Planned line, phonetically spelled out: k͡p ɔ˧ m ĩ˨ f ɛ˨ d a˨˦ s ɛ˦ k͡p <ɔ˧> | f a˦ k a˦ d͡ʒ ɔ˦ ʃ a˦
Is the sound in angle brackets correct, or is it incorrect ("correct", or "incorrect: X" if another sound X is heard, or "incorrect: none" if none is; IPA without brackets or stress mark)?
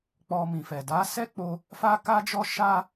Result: incorrect: o˧